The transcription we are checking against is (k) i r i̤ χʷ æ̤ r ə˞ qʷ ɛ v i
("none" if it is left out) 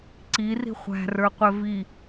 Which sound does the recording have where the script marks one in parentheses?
ǀ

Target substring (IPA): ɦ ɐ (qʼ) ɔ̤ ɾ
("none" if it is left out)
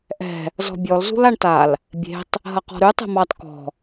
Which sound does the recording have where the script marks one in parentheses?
q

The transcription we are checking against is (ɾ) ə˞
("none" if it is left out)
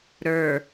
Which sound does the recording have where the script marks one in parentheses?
ɾ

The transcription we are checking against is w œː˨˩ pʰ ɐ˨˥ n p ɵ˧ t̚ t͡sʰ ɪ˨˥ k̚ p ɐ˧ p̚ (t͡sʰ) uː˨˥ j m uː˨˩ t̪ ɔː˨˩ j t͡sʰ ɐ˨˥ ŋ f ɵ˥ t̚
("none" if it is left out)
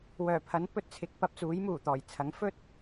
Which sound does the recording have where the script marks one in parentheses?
t͡s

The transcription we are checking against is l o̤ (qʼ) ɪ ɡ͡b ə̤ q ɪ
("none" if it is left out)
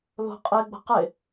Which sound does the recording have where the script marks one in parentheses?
qʼ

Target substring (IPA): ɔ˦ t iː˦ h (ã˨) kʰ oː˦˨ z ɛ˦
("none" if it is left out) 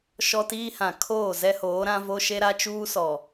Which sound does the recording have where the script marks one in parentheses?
ã˨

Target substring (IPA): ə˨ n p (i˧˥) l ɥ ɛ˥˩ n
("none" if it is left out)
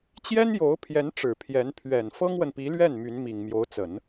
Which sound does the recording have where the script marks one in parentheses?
i˧˥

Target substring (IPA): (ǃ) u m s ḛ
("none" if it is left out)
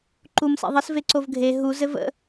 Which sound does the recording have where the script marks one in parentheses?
ǃ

